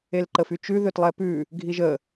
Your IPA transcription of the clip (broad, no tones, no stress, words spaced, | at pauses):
elǃəfyt͡ʃʉ ðøtlˠɛpʉ | ɡʱiʒə